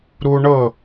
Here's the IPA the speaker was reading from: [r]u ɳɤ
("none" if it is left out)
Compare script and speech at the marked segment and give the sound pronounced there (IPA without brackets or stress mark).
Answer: ɾ